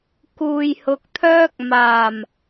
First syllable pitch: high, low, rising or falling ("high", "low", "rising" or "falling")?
low